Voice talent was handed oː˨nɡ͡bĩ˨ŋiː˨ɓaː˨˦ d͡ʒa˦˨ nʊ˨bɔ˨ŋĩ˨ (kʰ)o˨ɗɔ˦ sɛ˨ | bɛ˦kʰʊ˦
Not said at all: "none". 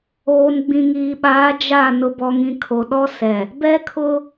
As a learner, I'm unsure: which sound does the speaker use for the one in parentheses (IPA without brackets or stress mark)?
kʰ